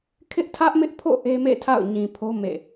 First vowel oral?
yes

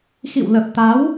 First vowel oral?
yes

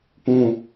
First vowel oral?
no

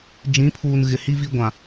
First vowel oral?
no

